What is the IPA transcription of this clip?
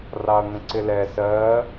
rɑɐ̯ŋə̃ǀɪlɛ sɜ

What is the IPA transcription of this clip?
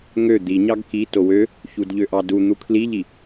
ŋø d̪iɲɑɡ ki towø | çudʎøʔɑdu n̪ukʰliʎi

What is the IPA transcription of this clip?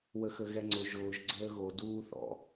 wəxəɣɛŋ͡ǀʊ ʒʊːʒ ɡ͡ǀəːɣo duːθɔ̰

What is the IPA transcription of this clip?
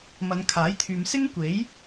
mɐ˨˧nkʰaː˨˥jt̪ʰyː˨m sɪ˥ŋkʷe˨˥j

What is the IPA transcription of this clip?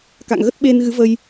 ka̰˧˨ŋɣə˦˥t̚ ɓe˧n ɣɨ˨˦və˧j

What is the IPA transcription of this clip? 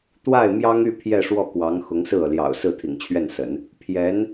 t̪wa˥˩ɪ̯ mjɑ˥ŋy˥˧ pʰjɛ˥˧ʂwɔ˥˩kwɑ˧˥ŋ xʊ˧˥ŋsɹ̩˥˩ɤ˩ ljɑ̰˨˩ʊ̯ sɹ̩˥˩t̪ʰḭ˨˩ŋt͡ɕʰɥɛ˥˩nsə̰˨˩˦n | pʰjɛ˧˥n

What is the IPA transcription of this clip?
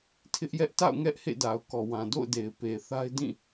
tʰɪ˦ʔjɛ˦ʔta̰˦˨ʊ̯ŋɛ˦ʔ hḛ˦˨da˨ʊ̯kɔ˨wã˨ do̰˦˨ʊ̯de˨ɪ̯ pe˨θa˦ɪ̯dĩ˦˨

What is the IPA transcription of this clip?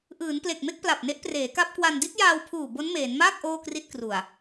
ʔɯː˩˦nple˨˩k̚me˥˩k̚ pla˨˩p̚ne˦˥ʔpreː˩˦ ka˦˥p̚kwa˧n di˦˥t̚jaː˧wpʰuː˨˩ bo˦˥nmeː˩˦nmaː˥˩k̚ ʔoː˥˩kri˥˩t̚kru˨˩a̯

